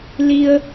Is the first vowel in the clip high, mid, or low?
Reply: high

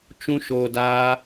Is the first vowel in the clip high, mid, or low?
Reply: high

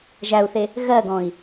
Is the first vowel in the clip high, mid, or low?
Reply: low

